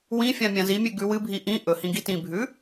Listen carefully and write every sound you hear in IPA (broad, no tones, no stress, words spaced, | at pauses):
wĩfʲã mʲãzimʲʉ ɡʉwɨbʱi ʔĩ ʔɵhĩ ɡitĩbʱʉ